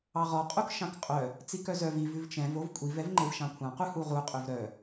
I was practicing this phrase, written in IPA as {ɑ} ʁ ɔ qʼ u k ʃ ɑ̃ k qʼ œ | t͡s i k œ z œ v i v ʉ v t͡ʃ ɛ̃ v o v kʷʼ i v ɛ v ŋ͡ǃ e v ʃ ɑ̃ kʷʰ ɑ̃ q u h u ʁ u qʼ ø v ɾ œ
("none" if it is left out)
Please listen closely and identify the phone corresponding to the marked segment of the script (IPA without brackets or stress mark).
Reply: ɑ